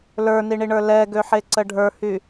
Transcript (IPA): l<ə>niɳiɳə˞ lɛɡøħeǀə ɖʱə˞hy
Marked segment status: incorrect: ə˞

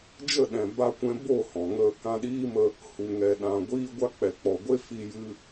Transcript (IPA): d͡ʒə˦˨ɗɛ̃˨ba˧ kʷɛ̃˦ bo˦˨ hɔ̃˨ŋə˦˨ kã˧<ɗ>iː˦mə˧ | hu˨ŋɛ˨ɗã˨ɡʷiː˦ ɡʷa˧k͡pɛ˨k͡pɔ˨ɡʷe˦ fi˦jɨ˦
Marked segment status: correct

